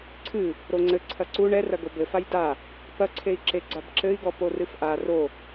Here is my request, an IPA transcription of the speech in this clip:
ǀʰ ɨ | ɾ o ŋ͡ǀ ɘ ǀʰ ɐ ǀ u ɳ ɛ r ɐ ɡ o b ɘ f a j d a | p ɐ ǀʰ e i̯ ǁ e ɡ͡ǀ a b ǁ ɘ i̯ ɡ ɔ p o r ɨ f ʔ a r o

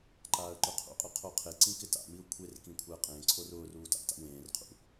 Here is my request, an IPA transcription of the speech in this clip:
ǃ aː ə̯ ǃ ʊ qʰ ṵ qʼ ʊ qʰ o qʰ e ǀ ĩ k ɪ t a̰ m i ʊ̯ kʷʰ e r k ĩ kʷʰ ɛ ə̯ qʼ ẽː ǀʰ o r ʊː r uː t a̰ t a̰ w ẽː r qʰ ṵ

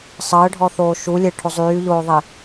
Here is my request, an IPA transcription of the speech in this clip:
sˤ əː ɖʱ ɔ θ oː ʃ u lʲ e ʈʰ o zˤ yː ʎ oː ðˤ e

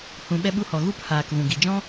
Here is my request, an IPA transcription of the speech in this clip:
h ũ˧ ɓ ɛ˧ ɓ u˧ h ɔ˨ ɣ u˦ p h aː˨ k v ũ˨ ɡ i˨ d͡ʒ ɔ̃˦

